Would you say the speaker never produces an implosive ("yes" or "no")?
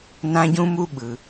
no